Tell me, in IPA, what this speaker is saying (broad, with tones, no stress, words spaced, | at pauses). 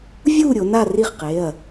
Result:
vʲu˥˧ ɾʲo˩˧na˥˧ri˥˩χqe˩˧˩ɐ̯